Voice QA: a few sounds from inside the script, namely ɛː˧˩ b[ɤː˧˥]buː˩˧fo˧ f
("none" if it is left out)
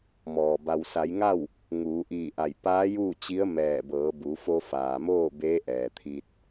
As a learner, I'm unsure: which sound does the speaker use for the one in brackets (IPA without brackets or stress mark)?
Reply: ɤː˩˧